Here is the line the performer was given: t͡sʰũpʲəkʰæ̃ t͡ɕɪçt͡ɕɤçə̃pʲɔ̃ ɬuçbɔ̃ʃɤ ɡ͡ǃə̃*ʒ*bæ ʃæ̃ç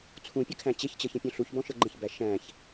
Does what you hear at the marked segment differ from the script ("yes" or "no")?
yes